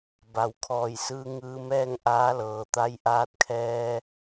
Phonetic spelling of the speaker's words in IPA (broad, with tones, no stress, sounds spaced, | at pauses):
b a˩ w kʰ ɔː˧˩ j s ɯː˧ ŋ ɯː˧ m ɛː˥˨ ŋ ʔ aː˧˥ l ɤː˩ t̪ a˧ j ʔ aː˧ t̚ kʰ ɛː˧